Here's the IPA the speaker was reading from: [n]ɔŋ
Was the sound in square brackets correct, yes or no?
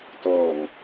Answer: no